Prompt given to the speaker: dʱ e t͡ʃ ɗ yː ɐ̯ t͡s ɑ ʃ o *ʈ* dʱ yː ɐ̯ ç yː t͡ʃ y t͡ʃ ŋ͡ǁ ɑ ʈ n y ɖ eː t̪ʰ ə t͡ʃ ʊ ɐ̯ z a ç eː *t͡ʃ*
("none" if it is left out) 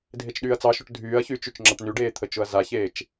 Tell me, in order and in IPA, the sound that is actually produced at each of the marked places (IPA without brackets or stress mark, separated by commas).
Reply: ʈ, t͡ʃ